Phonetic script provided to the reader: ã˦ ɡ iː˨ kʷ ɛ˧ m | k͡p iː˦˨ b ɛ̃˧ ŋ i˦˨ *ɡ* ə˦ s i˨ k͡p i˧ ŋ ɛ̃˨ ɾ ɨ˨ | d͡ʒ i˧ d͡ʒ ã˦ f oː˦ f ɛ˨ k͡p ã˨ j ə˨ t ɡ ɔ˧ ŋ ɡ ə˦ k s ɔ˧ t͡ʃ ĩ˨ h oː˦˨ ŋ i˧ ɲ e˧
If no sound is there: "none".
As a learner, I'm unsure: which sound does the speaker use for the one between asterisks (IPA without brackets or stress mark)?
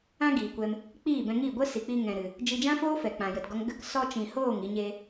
ɡʷ